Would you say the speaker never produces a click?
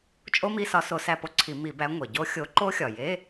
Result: no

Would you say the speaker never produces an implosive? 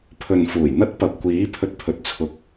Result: yes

